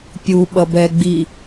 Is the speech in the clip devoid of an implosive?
no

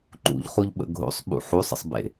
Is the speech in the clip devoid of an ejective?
yes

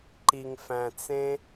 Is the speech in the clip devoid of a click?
no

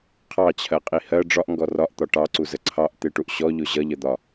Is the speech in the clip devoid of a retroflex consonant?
no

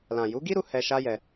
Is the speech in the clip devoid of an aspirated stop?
yes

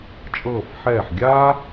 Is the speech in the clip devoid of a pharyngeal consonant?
no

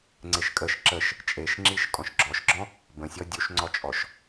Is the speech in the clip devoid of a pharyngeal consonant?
yes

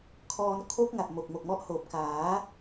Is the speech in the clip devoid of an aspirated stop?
no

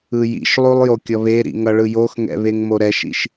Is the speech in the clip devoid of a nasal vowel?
yes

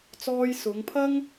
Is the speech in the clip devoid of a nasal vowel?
yes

